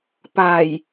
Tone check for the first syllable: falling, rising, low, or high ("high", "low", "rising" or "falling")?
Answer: low